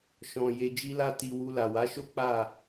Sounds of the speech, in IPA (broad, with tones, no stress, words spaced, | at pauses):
ʃɔ̃˨ je˧d͡ʒi˦la˦ti˧ wu˧la˨wa˨˦ʃo˦ k͡pa˦˨